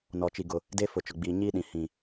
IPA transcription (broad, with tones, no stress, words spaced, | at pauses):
nɔ˨t͡ʃi˨ ɡʊ˨ | de˦ fʊ˨t͡ʃʊ˨ɡ͡biː˨ ɲiː˦ɗĩ˨ hĩ˨